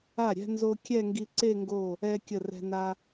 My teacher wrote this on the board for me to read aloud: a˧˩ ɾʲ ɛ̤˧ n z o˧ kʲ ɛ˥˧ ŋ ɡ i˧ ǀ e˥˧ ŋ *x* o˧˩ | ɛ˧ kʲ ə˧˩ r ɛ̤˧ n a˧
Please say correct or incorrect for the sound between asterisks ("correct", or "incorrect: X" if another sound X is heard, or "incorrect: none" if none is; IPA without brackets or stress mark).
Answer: incorrect: ɡ